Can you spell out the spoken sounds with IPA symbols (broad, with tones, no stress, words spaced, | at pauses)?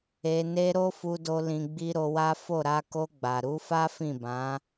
e˧ne˦ ɾo˦fu˧do˧ lĩ˧ɡ͡bi˦ ɾo˧wa˦ fo˦˨ ɾa˧ko˧ɡ͡ba˨ ɾu˨˦fa˦fĩ˦˨bã˨˦